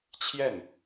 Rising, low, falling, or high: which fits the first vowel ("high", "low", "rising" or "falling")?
falling